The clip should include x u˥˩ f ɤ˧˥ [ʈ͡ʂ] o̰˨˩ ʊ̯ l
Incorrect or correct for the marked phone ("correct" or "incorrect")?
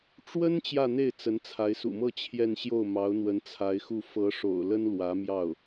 incorrect